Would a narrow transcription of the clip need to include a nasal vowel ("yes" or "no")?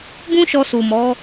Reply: yes